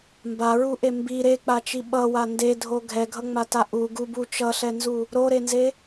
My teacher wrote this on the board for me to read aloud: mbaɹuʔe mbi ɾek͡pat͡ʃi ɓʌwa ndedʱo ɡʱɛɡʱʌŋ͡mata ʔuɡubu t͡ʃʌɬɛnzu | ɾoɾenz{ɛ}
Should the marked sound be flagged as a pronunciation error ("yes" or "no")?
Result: yes